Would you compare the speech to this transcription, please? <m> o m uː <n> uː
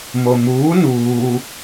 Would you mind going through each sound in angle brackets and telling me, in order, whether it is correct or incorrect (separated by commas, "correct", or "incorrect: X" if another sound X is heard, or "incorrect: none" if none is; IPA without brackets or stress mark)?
correct, correct